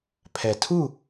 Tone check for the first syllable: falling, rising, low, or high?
low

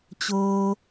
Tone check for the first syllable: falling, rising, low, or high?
low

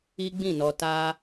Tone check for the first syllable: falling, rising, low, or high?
high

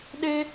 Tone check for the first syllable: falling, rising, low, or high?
high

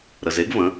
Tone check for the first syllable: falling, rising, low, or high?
low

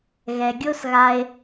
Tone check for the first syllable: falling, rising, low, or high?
low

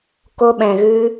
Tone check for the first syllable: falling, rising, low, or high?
high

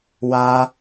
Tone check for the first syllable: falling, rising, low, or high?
high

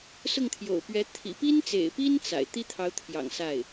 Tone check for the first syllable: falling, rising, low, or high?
falling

